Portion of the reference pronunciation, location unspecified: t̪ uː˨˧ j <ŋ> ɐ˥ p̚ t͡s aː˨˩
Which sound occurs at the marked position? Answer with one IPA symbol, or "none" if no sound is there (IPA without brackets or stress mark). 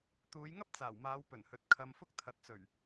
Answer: ŋ